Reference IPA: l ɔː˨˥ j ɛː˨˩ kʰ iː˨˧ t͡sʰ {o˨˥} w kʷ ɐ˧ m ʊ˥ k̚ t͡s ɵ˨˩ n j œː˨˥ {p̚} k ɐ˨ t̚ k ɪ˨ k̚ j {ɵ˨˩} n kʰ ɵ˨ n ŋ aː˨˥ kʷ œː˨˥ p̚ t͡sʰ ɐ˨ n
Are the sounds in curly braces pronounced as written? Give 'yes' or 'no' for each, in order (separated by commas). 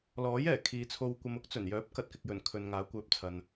no, yes, yes